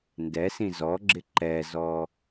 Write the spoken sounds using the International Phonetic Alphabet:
ndɛsĩ zɔɡ͡ǁɪ ǃɛzɔ

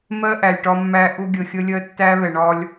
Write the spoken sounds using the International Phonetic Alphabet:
mɜ˦ ʔæ˨lʲʈɒ˦mːæ˦ ʔʊ˦ɡʲə˨ xʲə˦lʲɜ˦ tːæ˦βɛ˨ɳɒ˦lʲ

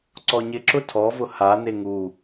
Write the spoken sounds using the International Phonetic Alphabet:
ǀɔɲɪǁʊ tʰɔvʊ hane ŋu

